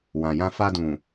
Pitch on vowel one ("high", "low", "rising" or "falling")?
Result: low